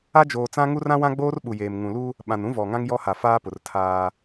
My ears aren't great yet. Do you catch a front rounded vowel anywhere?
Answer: no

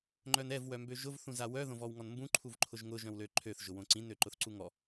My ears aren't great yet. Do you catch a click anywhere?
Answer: yes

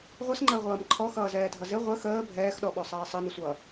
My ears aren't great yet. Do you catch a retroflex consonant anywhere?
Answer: no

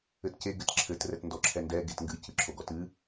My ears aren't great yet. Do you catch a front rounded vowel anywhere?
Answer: no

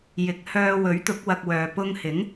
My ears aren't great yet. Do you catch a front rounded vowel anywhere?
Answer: yes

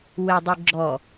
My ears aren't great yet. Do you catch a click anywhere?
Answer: yes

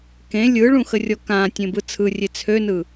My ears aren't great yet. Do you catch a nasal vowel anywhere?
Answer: yes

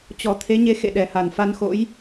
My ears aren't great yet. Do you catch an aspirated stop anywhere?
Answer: yes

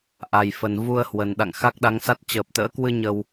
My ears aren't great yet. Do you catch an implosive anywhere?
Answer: yes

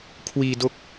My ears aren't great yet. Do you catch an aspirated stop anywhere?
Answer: yes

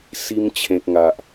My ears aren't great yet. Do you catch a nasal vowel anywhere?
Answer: yes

